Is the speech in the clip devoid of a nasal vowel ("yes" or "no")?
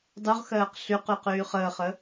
yes